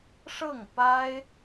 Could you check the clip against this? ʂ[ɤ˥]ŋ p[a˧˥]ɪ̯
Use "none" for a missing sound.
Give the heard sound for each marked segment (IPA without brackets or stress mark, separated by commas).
ɤ˥˩, a˥